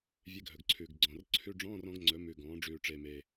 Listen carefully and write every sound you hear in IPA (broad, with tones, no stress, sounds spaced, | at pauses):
vʲ e˧˥˧ ɡʱ ɵ˨˩ ɡ ǀʰ ʉː˨˩ ɡ ɡ͡ǀ ɔ̃˨˩ r ǀʰ ʉ˧˥˧ ɖ͡ʐ ɔ̃ː˧˥˧ r ɔ̃˩˥ ɡ ŋ͡ǀ ɵ˩˥ m ʉː˨˩ ɡ ɔ̃ː˩˥ ɖ͡ʐ ʉː˨˩ ʈ͡ʂ e˨˩ m e˨˩